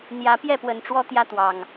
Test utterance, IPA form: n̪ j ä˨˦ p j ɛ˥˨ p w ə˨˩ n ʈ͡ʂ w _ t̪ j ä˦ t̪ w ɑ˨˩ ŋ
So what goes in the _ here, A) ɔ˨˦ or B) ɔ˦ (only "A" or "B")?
B